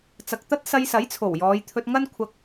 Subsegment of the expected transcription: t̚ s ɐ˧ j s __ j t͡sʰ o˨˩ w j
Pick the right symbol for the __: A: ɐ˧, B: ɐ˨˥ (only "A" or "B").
B